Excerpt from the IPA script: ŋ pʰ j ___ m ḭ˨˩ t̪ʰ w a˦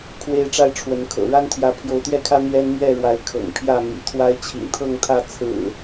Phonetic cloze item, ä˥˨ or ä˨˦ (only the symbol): ä˥˨